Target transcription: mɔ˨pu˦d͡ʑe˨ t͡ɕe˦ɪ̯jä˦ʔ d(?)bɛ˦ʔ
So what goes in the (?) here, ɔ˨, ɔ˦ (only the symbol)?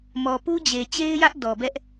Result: ɔ˨